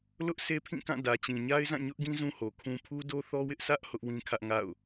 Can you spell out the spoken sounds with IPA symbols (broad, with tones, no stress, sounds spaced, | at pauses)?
l ʊ˦ ʔ s e˦ pʰ ĩ˦˨ k ã˦˨ d ä˨ t͡ɕ ĩ˨ ɲ a˦ ɪ̯ z ã˦˨ ɲ ʊ˦ ʔ ɡ ĩ˦ z ũ˦ h o˨ kʰ ũ˦ pʰ u˦ d o˦ θ ɔ˦ w ɪ˦ ʔ s ä˦ ʔ h ʊ˦ ʔ w ĩ˦ kʰ ä˦ ʔ ŋ a̰˦˨ ʊ̯